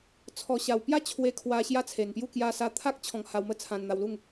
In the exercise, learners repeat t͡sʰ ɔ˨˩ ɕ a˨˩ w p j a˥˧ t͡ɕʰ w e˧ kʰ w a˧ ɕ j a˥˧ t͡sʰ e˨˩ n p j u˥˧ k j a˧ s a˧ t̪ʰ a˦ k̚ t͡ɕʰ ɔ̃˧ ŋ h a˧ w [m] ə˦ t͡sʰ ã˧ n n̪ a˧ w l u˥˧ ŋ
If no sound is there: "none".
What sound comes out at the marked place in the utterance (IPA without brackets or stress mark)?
m